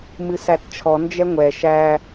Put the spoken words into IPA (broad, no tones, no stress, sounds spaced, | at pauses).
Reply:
m ɨ s æ t t͡ʃʰ ɔ n d͡ʒ ɛ ŋʷ ɛ ʃ æ